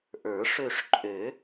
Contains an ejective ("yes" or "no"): yes